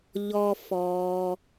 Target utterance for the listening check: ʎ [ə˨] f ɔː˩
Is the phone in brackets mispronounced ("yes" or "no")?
yes